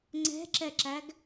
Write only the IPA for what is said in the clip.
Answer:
ŋ͡ǀ ɛ̤ ǁ ɛ ǁ æ ɡ

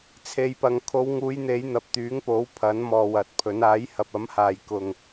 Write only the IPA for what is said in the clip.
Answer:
t͡sʰ e˨ j p ɐ˨ ŋ kʰ o˨˧ w ŋ uː˨˧ j n̪ e˨˧ j n̪ ɐ˨ p̚ t̪ yː˨˥ ŋ p o˨˥ w pʰ ɐ˨˥ n m ɔː˨ w ɐ˨ t̚ pʰ ɵ˨˥ n aː˨˥ j h ɐ˨ p̚ ɐ˨˥ m h aː˨ j k ʊ˨ ŋ

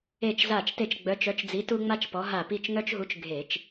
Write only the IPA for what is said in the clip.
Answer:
e˧˩ t͡ʃ z a˧˩ t͡ʃ t e˧˩ t͡ʃ ɡ͡b œ˨˦ t͡ʃ œ˨˦ t͡ʃ d͡z i˨˦ t u˦ ŋ͡m a˦ t͡ʃ p ɔ˨˦ ɦ a˧˩ p i˥˨ t͡ʃ ŋ œ˦ t͡ʃ ɦ u˨˦ t͡ʃ ɡʱ e˧˩˧ t͡ʃ

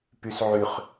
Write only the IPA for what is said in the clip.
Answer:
p y s ʕ y χ

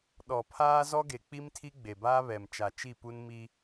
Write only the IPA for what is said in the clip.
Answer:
ɗ ɔ˨ pʰ aː˦ z ɔ˦ ɡ e˨ k͡p i˦ m tʰ i˦ ɡ͡b e˨ b aː˦ β ɛ˨ m t͡ʃ a˨ t͡ʃ i˦˨ p u˦ n m i˦

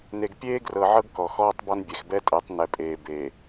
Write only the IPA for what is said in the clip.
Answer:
n e˨ ɡ pʲ eː˦ ɡ r ɤ˨ ʕ ɤ˦ ɡ k ɔ˨ x ɔː˦ tˤ b ɔ˦ n bʲ ɛ˨ x b ɛ˦ tʼ ɛ˨˦ tˤ n ɛ˦ pʼ eː˦ b e˨

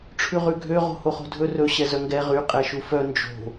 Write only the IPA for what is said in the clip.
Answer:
ʈ͡ʂʰ ʉ ʁ ʉ ɡʱ ø ʁ o̤ h o χ o̤ dʱ ɵ r ɵ ɕ ɛ z œ ŋ ɡ ɛ ʁ y qʼ ɛ ʃ u f œ n d͡ʒ o̤

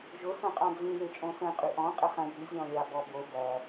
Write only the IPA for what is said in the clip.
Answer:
ʒ ʊ s õ qʼ ɑ̃ d͡z ĩ β e t͡ʃʼ õ s ə̃ qʼ ʉ ʔ ɔ̃ qʼ ə χ ɐ̃ j ʉ zʲ ɔ̃ lʲ ɑ b ɔ b o b ɐ

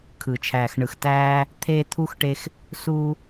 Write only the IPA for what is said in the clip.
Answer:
kʰ ɯ˩ t͡ʃʰ æː˩ x ɳ ɯ˩ x t æː˧ | t̪ʰ eː˧ t̪ʰ u˧ x ʈ e˧ x | s uː˧

